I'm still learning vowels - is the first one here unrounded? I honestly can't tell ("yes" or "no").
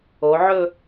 no